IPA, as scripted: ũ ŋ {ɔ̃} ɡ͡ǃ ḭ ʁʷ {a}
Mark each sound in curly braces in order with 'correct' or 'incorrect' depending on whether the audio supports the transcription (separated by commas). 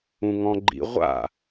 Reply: correct, incorrect